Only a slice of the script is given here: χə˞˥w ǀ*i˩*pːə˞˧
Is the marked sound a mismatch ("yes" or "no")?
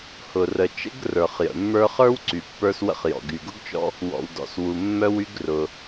yes